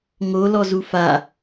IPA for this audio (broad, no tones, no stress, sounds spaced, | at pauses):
ŋ o l ɔ z u f a